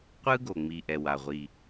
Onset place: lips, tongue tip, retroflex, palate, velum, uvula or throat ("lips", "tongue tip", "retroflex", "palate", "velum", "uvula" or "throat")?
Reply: uvula